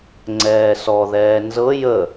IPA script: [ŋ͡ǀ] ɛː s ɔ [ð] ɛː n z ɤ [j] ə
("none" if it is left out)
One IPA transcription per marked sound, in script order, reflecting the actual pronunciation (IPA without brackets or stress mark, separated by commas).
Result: ŋ͡ǀ, ð, j